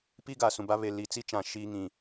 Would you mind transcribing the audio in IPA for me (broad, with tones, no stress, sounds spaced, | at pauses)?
p i˦ ɡ a˨ s ũ˨ b a˦ β e˨ l i˨ t͡s i˦ t͡ʃ ã˨ ʃ iː˦ ŋ ĩ˨